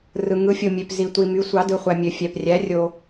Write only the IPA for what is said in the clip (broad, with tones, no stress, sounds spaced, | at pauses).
r ɯ˩ ŋ ɯ˩˧ fʲ o˩ mʲ ø˩ p z i˩ tʷ i˩ m y˩˧ sʷ ɑ˩˧ d ɯ˩ χʷ æ˩ mʲ ø˩ fʲ æ˩ p rʲ æ˩˧ rʲ o˩